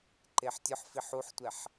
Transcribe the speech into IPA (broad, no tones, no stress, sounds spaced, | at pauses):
ǃ e ħ tʲ ʊ ħ f i ħ u ħ tʷ ɛ ħ